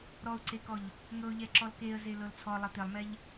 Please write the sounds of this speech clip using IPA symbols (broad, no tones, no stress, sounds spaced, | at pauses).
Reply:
ɾ ɔ ʊ̯ ǀ e k ɔ ʎ | ŋ ɤ ʊ̯ ʎ ɛ ǁ ɔ l k e ə̯ z e l ɤ l t͡sʰ ɔ lˠ e t̪ e lˠ m ɛ ʎ